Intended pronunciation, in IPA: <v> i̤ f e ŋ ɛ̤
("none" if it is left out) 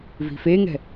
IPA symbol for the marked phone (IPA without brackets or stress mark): v